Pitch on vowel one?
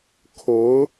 rising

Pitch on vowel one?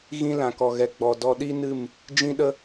high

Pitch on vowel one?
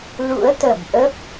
rising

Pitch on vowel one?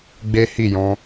high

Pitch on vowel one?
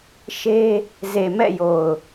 high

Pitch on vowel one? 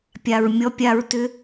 low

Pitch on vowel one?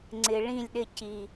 low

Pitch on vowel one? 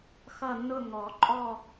falling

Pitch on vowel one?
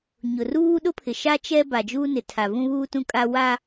low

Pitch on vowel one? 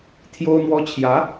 high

